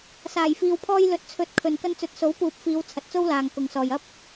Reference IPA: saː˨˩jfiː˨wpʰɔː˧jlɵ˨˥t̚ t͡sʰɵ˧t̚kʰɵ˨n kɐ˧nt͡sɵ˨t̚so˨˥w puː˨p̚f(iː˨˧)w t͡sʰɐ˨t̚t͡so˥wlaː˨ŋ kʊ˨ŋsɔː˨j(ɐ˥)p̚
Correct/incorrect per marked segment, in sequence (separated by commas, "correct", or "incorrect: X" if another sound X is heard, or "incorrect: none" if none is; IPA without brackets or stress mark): correct, correct